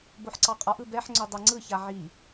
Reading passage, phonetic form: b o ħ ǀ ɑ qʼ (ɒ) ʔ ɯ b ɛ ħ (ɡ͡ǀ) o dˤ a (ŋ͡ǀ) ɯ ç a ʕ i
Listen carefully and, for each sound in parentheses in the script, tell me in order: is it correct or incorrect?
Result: correct, incorrect: ŋ͡ǀ, correct

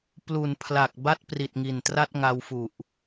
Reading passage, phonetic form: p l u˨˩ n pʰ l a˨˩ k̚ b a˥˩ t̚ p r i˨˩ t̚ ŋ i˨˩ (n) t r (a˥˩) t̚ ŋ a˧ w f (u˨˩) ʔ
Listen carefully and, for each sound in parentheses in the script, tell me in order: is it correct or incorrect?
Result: correct, correct, correct

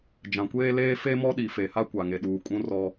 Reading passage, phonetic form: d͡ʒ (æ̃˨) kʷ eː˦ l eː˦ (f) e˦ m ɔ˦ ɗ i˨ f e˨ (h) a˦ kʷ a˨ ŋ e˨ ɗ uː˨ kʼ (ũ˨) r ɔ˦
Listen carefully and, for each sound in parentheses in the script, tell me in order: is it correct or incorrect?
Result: incorrect: ã˨, correct, correct, incorrect: ũ˦

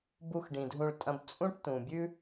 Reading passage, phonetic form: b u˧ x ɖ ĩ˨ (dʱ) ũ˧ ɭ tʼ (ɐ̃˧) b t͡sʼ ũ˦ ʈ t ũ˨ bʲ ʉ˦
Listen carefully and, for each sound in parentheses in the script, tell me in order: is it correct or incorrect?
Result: correct, correct

